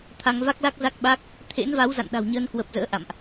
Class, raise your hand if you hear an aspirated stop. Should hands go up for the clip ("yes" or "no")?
yes